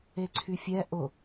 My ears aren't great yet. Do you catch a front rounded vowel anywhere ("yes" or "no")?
yes